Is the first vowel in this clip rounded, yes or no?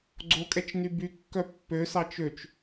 yes